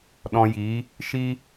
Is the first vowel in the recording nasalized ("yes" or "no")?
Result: yes